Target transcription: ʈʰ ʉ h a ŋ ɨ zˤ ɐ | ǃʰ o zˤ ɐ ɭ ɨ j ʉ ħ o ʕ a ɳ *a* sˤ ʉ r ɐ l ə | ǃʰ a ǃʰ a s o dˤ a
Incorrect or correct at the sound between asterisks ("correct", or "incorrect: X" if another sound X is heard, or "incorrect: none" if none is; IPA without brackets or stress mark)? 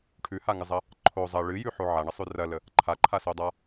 incorrect: ə